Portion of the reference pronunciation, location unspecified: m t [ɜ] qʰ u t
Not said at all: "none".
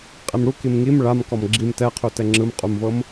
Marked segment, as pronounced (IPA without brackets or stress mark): ɛ